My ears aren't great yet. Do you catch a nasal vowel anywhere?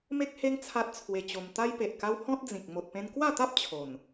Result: yes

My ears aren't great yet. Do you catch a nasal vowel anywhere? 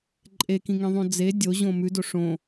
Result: yes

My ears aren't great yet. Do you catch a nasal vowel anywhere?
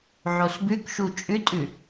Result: no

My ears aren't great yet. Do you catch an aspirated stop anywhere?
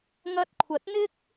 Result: yes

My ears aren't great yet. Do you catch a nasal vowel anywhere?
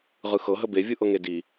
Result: no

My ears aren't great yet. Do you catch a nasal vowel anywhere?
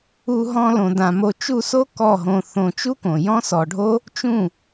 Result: yes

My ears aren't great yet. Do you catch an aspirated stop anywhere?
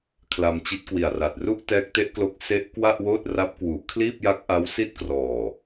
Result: yes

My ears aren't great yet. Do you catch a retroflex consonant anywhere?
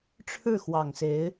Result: yes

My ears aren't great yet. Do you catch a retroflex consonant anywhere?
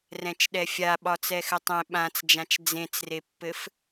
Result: no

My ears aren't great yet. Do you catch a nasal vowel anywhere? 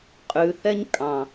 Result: yes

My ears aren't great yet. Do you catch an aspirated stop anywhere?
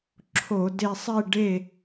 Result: yes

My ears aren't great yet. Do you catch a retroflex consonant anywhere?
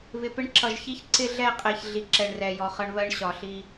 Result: yes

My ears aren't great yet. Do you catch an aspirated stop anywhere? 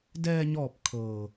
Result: yes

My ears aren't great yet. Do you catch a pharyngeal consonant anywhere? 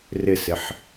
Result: yes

